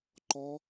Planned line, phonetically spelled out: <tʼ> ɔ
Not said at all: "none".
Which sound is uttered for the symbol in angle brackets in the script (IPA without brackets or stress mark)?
ǃ